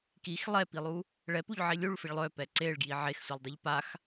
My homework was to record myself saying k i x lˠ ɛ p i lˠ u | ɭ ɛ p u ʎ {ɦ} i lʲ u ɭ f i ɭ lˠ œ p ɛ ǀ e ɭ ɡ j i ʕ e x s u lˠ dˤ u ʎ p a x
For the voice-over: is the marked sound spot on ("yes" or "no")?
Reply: no